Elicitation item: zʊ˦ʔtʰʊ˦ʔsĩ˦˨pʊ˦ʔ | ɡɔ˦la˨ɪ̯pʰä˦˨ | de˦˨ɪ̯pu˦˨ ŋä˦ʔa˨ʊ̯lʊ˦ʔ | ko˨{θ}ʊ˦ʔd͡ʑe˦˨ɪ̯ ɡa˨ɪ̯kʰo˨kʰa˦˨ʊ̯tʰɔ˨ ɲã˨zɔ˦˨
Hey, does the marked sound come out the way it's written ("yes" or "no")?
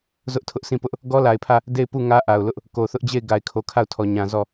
yes